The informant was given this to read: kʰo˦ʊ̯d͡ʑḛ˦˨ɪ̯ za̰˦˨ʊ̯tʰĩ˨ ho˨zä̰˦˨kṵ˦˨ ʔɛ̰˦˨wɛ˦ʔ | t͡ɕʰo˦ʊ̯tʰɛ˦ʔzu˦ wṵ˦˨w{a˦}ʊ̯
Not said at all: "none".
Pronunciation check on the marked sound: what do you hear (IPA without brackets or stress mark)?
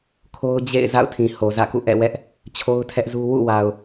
a˨